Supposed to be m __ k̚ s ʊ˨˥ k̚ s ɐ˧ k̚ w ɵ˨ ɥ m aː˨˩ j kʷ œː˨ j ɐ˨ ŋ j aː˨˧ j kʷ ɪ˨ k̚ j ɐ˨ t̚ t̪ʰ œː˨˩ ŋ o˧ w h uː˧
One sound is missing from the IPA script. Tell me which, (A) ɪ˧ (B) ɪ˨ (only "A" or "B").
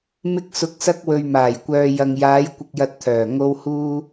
A